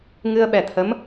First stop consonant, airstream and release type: implosive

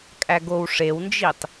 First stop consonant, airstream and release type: ejective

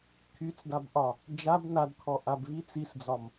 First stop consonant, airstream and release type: aspirated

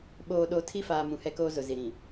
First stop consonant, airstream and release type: implosive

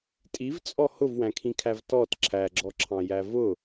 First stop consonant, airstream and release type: ejective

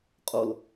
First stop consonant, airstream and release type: ejective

